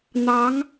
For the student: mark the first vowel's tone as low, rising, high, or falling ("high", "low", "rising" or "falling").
rising